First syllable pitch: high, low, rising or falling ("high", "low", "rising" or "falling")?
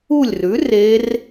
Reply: falling